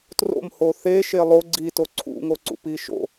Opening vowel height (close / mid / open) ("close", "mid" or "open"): mid